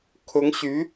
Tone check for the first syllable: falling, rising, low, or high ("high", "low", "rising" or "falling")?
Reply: rising